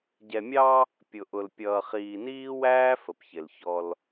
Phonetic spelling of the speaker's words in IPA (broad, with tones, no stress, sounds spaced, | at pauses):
ɟ ɛ˨ mʲ ɑ˦ | pʲ ʊ˨ ʔ ʊ˨ l pʲ ʌː˨ χ iː˨ n iː˦ w æː˦ f ə˨ p ç ɪ˨ l ç ɔ˦ l